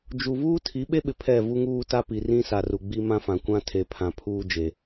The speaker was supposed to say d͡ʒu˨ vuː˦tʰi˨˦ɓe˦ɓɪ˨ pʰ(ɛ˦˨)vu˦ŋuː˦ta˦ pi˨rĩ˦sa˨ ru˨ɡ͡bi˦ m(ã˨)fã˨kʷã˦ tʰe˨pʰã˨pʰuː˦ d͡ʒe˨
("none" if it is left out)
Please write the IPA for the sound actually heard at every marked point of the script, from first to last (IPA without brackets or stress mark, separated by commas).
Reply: ɛ˦˨, ã˦